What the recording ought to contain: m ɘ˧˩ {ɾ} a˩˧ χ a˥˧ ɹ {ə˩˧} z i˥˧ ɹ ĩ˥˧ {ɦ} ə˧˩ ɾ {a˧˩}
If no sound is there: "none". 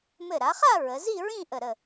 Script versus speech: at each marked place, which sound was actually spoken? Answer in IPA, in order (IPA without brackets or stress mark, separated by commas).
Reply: ɾ, ə˩˧, ʔ, ə˧˩